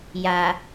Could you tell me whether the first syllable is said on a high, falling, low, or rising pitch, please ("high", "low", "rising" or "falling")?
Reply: low